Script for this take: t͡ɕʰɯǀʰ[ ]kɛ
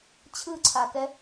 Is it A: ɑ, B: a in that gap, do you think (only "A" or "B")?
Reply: B